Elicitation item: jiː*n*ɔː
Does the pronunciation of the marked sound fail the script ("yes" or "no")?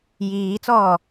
yes